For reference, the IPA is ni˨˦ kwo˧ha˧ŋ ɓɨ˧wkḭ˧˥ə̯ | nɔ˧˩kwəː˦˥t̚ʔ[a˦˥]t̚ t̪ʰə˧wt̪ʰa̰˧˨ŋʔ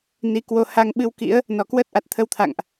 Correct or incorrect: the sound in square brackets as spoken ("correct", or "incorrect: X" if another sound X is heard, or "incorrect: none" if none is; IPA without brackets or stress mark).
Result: incorrect: a˨˩